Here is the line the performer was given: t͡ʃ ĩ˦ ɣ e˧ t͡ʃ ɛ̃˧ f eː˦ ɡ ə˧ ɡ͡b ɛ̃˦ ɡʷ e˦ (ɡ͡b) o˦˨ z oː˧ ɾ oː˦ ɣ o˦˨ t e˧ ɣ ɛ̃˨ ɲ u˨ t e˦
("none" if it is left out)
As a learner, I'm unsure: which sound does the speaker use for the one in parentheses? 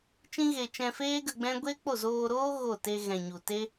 k͡p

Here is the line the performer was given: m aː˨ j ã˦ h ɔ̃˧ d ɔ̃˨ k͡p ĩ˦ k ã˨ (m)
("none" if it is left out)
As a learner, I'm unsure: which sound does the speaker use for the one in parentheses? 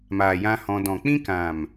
m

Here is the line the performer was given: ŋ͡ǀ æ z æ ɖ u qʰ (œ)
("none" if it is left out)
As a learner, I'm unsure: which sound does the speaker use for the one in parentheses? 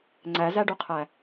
æ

